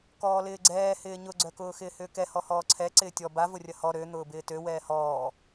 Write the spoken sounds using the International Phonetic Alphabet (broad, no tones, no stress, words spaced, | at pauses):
kɔːlɪːɡ͡ǀɛː hɪːɲʊɡ͡ǀœkʊː xɪːhʏːkɛ hɔhɔːǀʰɛ ǀɪːtʲɔ bavʊrʲɐ hɔ ɾø n̪ʊːbɪːtø wɛːhɔː